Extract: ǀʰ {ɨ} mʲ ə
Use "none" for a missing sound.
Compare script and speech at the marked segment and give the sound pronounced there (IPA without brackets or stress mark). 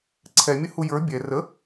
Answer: ɛ